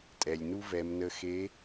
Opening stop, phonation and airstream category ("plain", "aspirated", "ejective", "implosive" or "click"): ejective